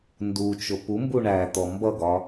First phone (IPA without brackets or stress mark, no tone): n